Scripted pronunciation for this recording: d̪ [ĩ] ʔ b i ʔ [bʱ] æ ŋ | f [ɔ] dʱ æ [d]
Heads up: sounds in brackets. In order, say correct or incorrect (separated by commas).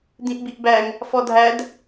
correct, incorrect, correct, correct